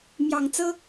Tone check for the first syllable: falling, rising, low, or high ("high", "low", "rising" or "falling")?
low